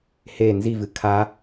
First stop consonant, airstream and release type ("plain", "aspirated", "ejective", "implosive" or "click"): aspirated